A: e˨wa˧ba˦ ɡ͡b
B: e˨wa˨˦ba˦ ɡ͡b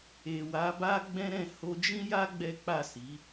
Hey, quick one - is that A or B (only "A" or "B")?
B